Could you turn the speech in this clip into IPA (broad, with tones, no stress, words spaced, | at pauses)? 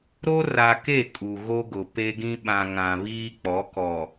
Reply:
ɾo˦ ra˨ke˦˨ kʼu˨ɣo˦ɡʊ˨ pe˦ɡĩ˦ ɓã˨ ŋã˨βiː˦k͡pɔ˨˦ kɔ˨